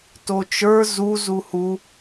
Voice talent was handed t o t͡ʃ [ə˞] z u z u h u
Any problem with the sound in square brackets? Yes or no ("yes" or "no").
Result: no